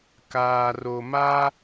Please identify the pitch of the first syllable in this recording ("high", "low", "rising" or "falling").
low